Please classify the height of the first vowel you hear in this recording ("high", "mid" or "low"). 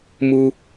high